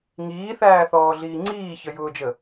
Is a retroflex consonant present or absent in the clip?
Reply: absent